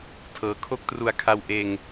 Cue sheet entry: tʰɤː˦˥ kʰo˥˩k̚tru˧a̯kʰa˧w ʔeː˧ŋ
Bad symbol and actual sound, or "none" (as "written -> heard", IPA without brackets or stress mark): none